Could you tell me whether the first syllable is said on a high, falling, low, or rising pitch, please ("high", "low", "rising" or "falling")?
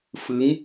rising